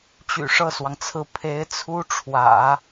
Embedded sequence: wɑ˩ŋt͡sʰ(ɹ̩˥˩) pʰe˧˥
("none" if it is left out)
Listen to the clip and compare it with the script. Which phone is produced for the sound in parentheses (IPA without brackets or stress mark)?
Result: ɹ̩˥˩